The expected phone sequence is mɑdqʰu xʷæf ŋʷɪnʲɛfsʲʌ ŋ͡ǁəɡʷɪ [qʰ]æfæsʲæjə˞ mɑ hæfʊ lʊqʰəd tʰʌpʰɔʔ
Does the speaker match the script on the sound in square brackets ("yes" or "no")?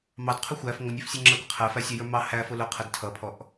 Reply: yes